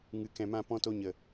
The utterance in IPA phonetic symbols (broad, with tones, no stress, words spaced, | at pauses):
ŋɨ˨kɛ̃˨mã˧ pɔ̃˧to˧ɲə˨